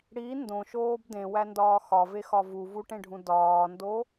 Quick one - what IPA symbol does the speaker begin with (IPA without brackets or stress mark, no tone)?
ɽ